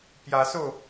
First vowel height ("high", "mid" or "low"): low